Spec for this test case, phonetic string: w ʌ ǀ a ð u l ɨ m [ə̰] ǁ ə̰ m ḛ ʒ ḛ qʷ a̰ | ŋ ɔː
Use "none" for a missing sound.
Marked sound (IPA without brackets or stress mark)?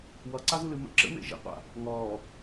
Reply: ə̰